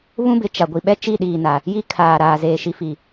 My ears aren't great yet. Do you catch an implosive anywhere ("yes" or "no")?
yes